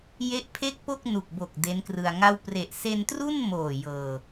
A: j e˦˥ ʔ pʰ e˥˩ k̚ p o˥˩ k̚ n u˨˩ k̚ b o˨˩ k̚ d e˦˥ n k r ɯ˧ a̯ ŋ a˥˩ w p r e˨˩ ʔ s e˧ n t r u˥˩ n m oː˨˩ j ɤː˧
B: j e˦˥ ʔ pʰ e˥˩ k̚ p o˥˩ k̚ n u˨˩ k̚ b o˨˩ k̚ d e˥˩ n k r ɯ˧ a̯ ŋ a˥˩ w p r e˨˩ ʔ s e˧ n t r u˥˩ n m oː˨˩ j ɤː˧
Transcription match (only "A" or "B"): A